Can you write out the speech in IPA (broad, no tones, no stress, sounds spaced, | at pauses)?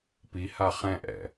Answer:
p i h a χ ɛ̃ ʔ ɛ̰